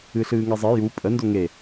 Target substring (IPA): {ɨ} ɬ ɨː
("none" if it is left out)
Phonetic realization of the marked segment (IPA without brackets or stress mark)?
ɨ